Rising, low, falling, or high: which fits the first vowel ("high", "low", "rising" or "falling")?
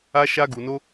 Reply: high